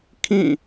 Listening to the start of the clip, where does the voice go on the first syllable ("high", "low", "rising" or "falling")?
falling